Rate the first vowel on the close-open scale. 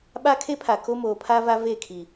open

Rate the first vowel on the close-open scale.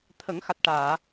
mid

